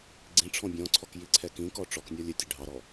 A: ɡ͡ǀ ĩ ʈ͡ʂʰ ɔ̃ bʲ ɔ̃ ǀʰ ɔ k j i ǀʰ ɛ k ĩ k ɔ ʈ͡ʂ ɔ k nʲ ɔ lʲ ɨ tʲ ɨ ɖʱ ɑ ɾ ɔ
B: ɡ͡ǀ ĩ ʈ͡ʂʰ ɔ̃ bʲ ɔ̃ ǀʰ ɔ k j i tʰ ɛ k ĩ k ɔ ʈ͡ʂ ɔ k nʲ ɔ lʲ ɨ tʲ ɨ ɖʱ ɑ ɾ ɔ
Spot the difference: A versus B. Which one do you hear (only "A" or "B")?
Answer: A